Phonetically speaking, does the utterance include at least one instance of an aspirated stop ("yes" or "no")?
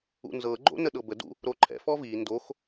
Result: yes